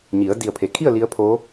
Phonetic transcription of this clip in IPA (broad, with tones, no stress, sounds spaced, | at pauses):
ɲ i˩˧ ə̯ d i˧˩ ə̯ pʰ e˩ kʰ i˥˨ ə̯ l i˧˥ ə̯ pʰ o˧˥